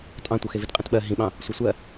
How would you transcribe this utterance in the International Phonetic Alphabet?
tʼ ɑ̃ tʷ ɤ x e v i t qʼ ĩ t ɓ ɜ ɦ ĩ ɓ ɑ̃ | sʷ e sʷ ɜ

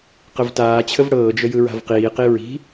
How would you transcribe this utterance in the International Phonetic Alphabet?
q ə v t aː t͡ɕʰ ə v ɽ ɤː d͡ʒ ə j ɯ ɹ a̤ v q iː q i ɹ i̤

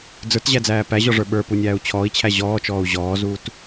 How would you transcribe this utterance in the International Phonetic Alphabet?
d͡z ə˞ t ʑ æ d͡z æː p æ ʑ ɔ ʐ ə˞ ɓ ə˞ p u nʲ æː u̯ t͡ɕʰ ɔː i̯ t͡ɕʰ æ ʑ ɔː t͡ʃ ɔː u̯ ʑ ɔː z uː t

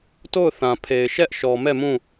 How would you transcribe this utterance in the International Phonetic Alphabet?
t o˦˨ ʊ̯ θ ã˨ pʰ e˨ ɪ̯ ʃ ɛ˦ ʔ ʃ ɔ˨ m ɛ˦˨ m ũ˦˨

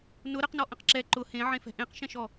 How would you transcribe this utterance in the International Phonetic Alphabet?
n ʊ ɾ ə q n ɔ ʔ ə̃ q ǁ ɛ ǃ ʊ h ẽ ʕ ẽ f ɛ̤ ʔ ẽ q ʃ ɛ̃ ʃ ɔ

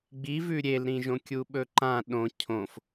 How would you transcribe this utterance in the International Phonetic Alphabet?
ɡ͡b i v ʉ ɾʲ e l ɾ ĩ ʒ õ kʲ u ɓ ɵ ǃ ã ɗ õ cʰ õ f

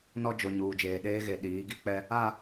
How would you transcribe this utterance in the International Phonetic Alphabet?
n ɔ˦ d͡ʒ o˨ ɲ uː˨ d͡ʒ eː˨ ɗ eː˦ ɣ e˨ ɗ iː˨˦ ɡ i˨ k͡p ɛ˦ | a˦˨

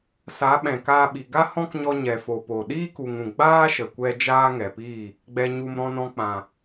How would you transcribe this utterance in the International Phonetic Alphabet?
s a˨˦ ɓ ɛ̃˨ k aː˧ ɓ i˨ ɡ a˦ h ɔ̃˦ k ɲ ɔ˧ ɲ ɛ˨ f o˨ p o˨ ɗ iː˦ k u˨ ŋ ũ˨ ɡ͡b aː˦ ʃ ə˨ kʷ ɛ˧ d͡ʒ aː˦ ŋ ɛ˨ p iː˦˨ | ɡ͡b ɛ˨ ɲ u˨ m ɾ ɔ̃˧ n ɔ̃˧ k͡p ã˨

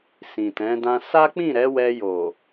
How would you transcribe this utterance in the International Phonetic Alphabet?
s ĩ˨ t ɛ̃˨˦ d ã˦ s a˦ k͡p ĩ˦˨ ɾ ɛ˨˦ w ɛ˧ j o˨

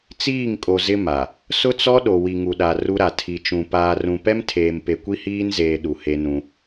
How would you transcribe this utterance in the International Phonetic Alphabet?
t͡s iː˦˨ ŋ kʼ o˨ z ɪ˦ m a˨ | s ʊ˦ t͡s ɔ˦ ɗ o˨ w i˨ ŋ u˨ ɗ a˨ r u˦ ɾ a˨ tʰ i˨ t͡ʃ ũ˨ p aː˨ r ũ˨ p ɛ˦ m tʰ eː˨ m p e˨ kʷ i˦ h iː˦ n z eː˨ ɗ u˨ h e˦ n ũ˦

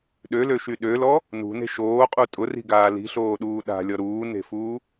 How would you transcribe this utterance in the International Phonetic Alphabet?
ɗ ø l ø ʃ y ɗ ø l ɔ | n ṳ n e̤ ʃ oː qʼ u tʼ ʊ r i̤ ɡ aː l i̤ ɬ oː ɗ uː ɗ a̤ lʲ ɔ ɾ uː n e̤ f uː

